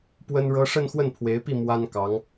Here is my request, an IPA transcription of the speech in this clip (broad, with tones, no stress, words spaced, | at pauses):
pwə˥nɻɤ˥ ʂə˥˧nxwə˥˩npʰwe˧˥ɪ̯pi˥˩ mwa˥nkɑ˧˥ŋ